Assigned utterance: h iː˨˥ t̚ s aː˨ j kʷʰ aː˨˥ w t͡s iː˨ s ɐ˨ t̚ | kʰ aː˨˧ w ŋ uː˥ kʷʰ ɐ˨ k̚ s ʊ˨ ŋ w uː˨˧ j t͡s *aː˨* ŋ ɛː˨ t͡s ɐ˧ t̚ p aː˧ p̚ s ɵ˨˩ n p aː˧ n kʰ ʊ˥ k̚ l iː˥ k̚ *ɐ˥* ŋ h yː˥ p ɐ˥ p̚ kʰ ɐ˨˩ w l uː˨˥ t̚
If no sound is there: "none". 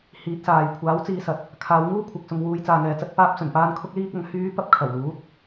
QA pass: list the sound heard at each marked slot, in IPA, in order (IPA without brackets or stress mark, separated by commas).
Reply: aː˨, ɐ˨˧